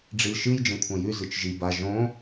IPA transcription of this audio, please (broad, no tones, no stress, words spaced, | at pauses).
ɖ͡ʐilʃɨj d͡ʒẽkʷʰɐ̃jʉ zɨt͡ʃʒi ba ʒõ